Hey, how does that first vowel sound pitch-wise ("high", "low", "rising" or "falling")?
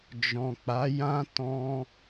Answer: low